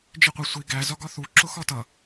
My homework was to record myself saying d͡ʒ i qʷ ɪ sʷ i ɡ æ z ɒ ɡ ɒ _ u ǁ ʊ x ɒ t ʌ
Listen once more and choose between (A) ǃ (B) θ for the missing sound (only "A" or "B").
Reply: B